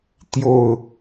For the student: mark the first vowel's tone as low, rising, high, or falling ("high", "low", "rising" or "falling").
falling